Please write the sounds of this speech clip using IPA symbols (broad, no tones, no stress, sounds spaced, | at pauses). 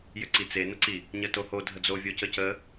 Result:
j ʏ ǀ i t͡s e n ə ǀ i | ɲ ə t o h o dʱ ə d͡z o vʲ o c ə c ə